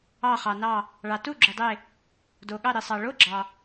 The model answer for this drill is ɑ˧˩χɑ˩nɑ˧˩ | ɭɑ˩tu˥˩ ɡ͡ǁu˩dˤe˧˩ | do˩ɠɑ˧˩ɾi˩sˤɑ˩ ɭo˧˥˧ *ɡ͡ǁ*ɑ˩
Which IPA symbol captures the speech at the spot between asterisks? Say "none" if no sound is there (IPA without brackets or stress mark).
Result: ɡ͡ǁ